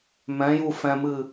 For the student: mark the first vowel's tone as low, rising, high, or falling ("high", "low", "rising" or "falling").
rising